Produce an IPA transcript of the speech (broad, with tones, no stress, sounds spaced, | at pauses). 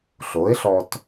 ɬ o˩˥ ɪ̯ ɬ ɔ˧ t